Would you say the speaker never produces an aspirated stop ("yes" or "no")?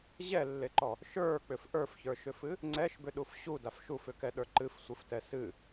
yes